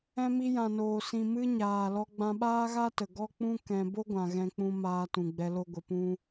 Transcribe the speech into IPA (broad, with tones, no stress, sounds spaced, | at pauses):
ɛ̃˧ m i˧ j ã˨ n oː˨ s ĩ˨ m ɨ˧ ɲ aː˨ l ɔ˧ ɡ͡b ã˧ ɓ aː˦ ɣ a˦ t ə˨ ɡ ɔ˦ k͡p ũ˦ k ɛ̃˧ b o˦ ɡʷ ã˨ ɣ ɛ̃˧ k͡p ũ˧ m aː˧ t ũ˨ ɡ͡b ɛ˧ l o˧ ɡʷ ə˨ p ũ˧